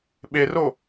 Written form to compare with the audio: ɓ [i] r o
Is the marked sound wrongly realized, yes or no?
yes